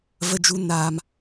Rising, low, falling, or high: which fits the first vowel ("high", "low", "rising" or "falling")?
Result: high